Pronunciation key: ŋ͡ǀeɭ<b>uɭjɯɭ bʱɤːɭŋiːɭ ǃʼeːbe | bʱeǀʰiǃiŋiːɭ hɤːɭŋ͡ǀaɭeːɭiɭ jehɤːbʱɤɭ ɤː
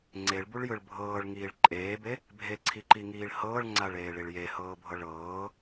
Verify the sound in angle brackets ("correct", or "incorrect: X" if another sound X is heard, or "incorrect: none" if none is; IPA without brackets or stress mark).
correct